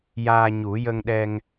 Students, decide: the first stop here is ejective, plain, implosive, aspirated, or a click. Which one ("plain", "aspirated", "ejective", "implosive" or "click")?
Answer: implosive